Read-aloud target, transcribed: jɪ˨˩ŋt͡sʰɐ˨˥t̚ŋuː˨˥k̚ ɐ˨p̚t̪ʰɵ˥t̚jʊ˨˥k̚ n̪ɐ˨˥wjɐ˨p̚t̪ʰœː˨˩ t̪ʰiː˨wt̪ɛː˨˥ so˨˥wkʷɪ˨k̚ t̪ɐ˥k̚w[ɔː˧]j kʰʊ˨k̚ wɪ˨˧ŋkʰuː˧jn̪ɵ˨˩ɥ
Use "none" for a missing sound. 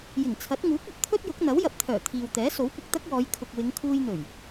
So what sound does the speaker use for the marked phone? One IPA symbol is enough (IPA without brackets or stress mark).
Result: ɔː˨˧